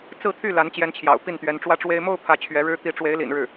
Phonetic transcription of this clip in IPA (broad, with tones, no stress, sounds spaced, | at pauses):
t͡s ɹ̩˥˧ t̪ʰ y˥˩ l a˧˥ n t͡ɕ j ɛ˧˥ n t͡ɕʰ j ɑ̰˨˩ ʊ̯ p i˥˩ n t̪ ɥ ɛ˧˥ n ʈ͡ʂ w ä˥ ʈ͡ʂ w e˥ ɪ̯ m o˥˧ ʊ̯ pʰ ä˥˩ t͡ɕʰ ɥ ɛ˧˥ ɻ ɻ̩˥ t̪ i˧˥ ʈ͡ʂ w e˧˥ ɪ̯ l ḭ˨˩ n ɻ ɻ̩˥˩